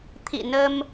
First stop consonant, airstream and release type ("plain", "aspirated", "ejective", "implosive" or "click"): aspirated